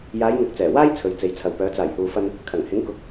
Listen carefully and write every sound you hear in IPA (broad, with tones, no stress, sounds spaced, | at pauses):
j aː˨˧ j ŋ ʊ˨ k̚ t͡s ɛː˨˩ w aː˥ j t͡sʰ ɵ˨ ɥ t͡s e˨ j t͡sʰ ɐ˨ w p œː˨˧ t͡s aː˨˩ j h uː˨ f ɐ˧ n | kʰ ɐ˨˩ ŋ h ɪ˨˥ ŋ k ʊ˨˥ k̚